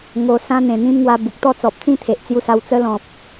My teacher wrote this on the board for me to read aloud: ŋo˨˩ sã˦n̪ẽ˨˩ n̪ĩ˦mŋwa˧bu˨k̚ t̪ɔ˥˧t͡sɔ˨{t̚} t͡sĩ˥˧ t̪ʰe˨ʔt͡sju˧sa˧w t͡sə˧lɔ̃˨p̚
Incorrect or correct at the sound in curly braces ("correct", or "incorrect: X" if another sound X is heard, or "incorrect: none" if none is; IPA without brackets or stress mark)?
incorrect: p̚